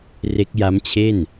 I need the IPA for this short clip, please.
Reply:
r e˦˥ k̚ j a˦˥ m t͡ɕʰ e˥˩ n

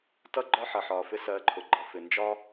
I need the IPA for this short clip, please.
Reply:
t ʌ˥ ɡ͡ǃ ɒ˥ ħ ʌ˩ ħ ɒː˩ f ɪ˥ s ɜː˧ ǃʰ ʊ˩ ɡ͡ǃ ʌ˩ f ɪ˩ n d͡ʒ ɒ˥

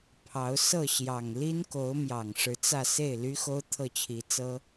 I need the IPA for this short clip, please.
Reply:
pʰ ɑ˧˥ ʊ̯ s ɤ˥˩ ɕ j ɑ˨˩ ŋ l i˥ n k o˧˥ ʊ̯ m j ɑ˨˩ ŋ ʂ ɻ̩˧˥ t͡s ä˥˧ s e˥˩ ɪ̯ l y˥ x o˥ ʊ̯ t̪ʰ ɤ˥˩ t͡ɕʰ i˧˥ t͡s ɤ˥

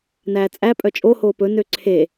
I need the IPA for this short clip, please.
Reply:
n æː t͡sʼ æ pʼ œ t͡ʃʼ o h oː p ɵ n ø ǀʰ e

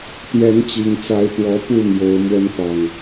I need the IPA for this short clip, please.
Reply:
t̪ j ɛ˨˦ n t͡ɕ i˨˩ ŋ t͡s a˨˦ ɪ̯ t̪ w ɔ˨˦ p u˥˨ m j o˨˦ ʊ̯ m w ə˨˦ n t̪ ɑ˨˩ ŋ

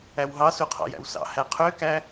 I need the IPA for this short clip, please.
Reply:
æ w ɦ ɑ s u qʰ ɑ̰ j æ̰ w s ɑ̰ h æ qʰ ø k æ

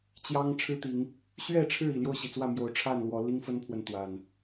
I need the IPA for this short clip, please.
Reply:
t͡ɕ j ɑ˦ ŋ ʈ͡ʂʰ ɻ̩˦ t̪ i˨˦ ŋ | ɕ ɥ ɛ˥˨ ʈ͡ʂʰ ɻ̩˥˨ i˨˩ l j o˥˨ ʊ̯ ɕ i˩ t͡s w ä˥˨ m j o˨˦ ʊ̯ ʈ͡ʂʰ a˥˨ n l w ɔ˨˦ l i˦ ŋ f ə˦ n pʰ w ə˨ n t̪ w a˨˩ n

